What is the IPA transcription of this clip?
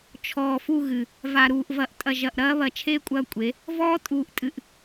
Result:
t͡ʃʰ ɔː˨ f u˦˨ ɣ ɨ˨ | v a˨ ɾ uː˨ ʔ v ɐ˨ ʔ tʼ ɐ˨ ʒ ɐ˨ ʔ ɾ ɐː˦ β ɐ˨ t͡ʃʰ eː˦ kʷʼ ɐː˦ kʷʼ e˨˦ | v ɔː˦ tʼ uː˨ ʔ tʼ ɨ˨ ʔ

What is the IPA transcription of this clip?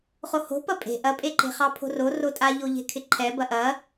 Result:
χ o h o̤ p ɐ pʼ e̤ ʔ ɐ pʼ e ǃ e̤ χ ɑ pʰ o̤ r o r o tʼ a ʎ o ʎ e̤ kʰ ɪ ǃʰ ɛ b ɐ ʔ ɐ

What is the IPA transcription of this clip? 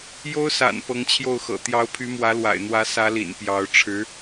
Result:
j o˥ ʊ̯ s a̰˨˩ n p ɤ˧˥ ŋ t͡ɕʰ j o˥˩ ʊ̯ x ɤ̰˨˩ t̪ j ɑ˧˥ ʊ̯ pʰ y˧˥ m w ä˧˥ l w a̰˨˩ ɪ̯ n̪ w ä˧˥ s ä˧˥ l ḭ˨˩ n p j ɑ˧˥ ʊ̯ ʈ͡ʂʰ ɻ̩˧˥

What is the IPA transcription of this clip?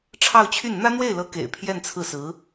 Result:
ʈ͡ʂʰ ɑ˥˧ ʊ̯ t͡ɕʰ y˥˩ n n̪ ä˥ n̪ w e˥˩ ɪ̯ l ɤ˧˥ k ḛ˨˩ ɪ̯ pʰ j ɛ˥˧ n t͡sʰ ɹ̩˥˩ s ɹ̩˧˥

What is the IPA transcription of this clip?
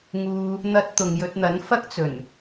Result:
ŋ uː˧ | n̪ ɐ˧ t̚ t̪ ʊ˨ ŋ j ɵ˧ t̚ n̪ ɐ˨˥ n f ɐ˥ k̚ t͡s ɵ˨˩ n

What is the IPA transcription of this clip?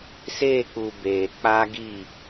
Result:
s e˦˨ k͡p u˨ b eː˨ k͡p a˦ ɡ i˦˨

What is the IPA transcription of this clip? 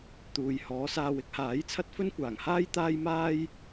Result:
t̪ uː˨ j h ɔː˨˥ s aː˧ w ɪ˥ k̚ h aː˨˥ j t͡sʰ ɐ˥ t̚ f ɵ˥ n kʷ aː˨˩ ŋ h aː˥ j t̪ aː˥ j m aː˥ j

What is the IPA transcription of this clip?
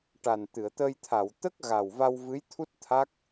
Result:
ʈ a˨˩ n t̪ ɨ˨˩˨ ə̯ t̪ ə˧ j t̪ʰ a˨˩˨ w t̪ ə˦˥ k̚ ɣ a˨˩ w v a˧ w v ɨ˧˥ j t̪ʰ u˦˥ t̚ t̪ʰ a˦˥ k̚

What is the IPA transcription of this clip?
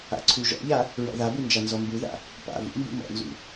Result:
a̰ ǀʰ u ʒ ɔ̰ ʎ a | ɹ ɔ̰ ð a b u n d͡ʒ a n z ɔ m b u ð a̰ | p a̰ v ṵ m b ṵ m ɔ̰ n z ṵ

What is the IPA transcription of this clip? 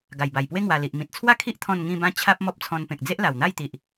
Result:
ɡ a˨˩ j b a˨˩ j p w e˦ ŋ w a˨˩ l i˨ ʔ m ĩ˨ t̚ t͡sʰ w a˥˧ kʰ i˦ ʔ t̪ʰ ɔ̃˥˧ n ŋ ĩ˥˧ b ã˦ t͡ɕʰ a˦ p̚ m ɔ˦ p̚ t͡sʰ ɔ̃˧ n p ẽ˨ k̚ d͡z e˦ ʔ l a˨˩ w n̪ a˥˧ j t̪ i˨ ʔ

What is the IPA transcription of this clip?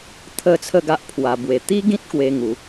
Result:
t̪ʰ ə˥˧ t͡sʰ ə˥˧ ɡ a˦ ʔ pʰ w a˧ b w e˧ t̪ i˦ ɡ ĩ˦ t̚ k w e˦ ŋ u˨˦

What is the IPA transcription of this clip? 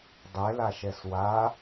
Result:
dˤ ɛ l a ʃ ɛ s w a

